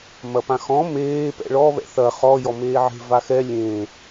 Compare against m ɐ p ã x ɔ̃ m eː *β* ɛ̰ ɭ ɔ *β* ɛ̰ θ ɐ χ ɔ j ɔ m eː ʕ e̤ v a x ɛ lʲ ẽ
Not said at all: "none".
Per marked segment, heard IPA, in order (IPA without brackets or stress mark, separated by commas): p, β